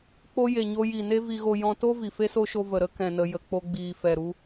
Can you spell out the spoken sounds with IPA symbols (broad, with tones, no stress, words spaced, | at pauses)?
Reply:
k͡po˦ je˨ɲo˧ ji˨ne˦ vi˧ɣo˧ jɔ̃˧to˦ vi˨fe˦so˦ʃo˧ və˨ɾə˦ kɛ̃˧nə˧jə˧ k͡po˦ɡ͡biː˧ fɛ˨ɾu˧